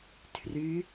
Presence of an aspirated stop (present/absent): present